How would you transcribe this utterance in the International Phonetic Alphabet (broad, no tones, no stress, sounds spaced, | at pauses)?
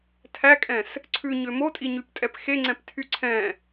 tʰ æ kʼ ɛ̃ s | ǀʰ ʉ ɲ ø m o tʼ i ɲ y p tʼ ɛ p x e ŋ͡ǀ ɛ̃ p tʰ y ǀʰ ɛ̃